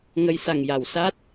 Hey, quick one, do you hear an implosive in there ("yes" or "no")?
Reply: no